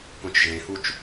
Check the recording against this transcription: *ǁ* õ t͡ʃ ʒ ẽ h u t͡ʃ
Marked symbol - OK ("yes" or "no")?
no